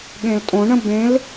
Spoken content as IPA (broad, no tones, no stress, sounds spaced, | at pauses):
ɠ ẽ l tʼ õ ɳ ə̃ b ẽ l